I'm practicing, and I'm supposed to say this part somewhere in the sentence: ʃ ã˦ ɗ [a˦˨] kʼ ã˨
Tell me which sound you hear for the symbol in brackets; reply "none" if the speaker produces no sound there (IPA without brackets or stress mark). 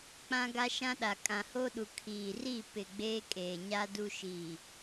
a˨